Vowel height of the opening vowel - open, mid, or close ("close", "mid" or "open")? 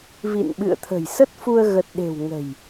close